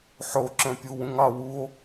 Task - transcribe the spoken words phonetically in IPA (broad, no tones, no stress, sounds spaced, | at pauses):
ħ o ǁ œ̃ pʲ u w ũ ŋ ɑ w u o̯